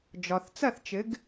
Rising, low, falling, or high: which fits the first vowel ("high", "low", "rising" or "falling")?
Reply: low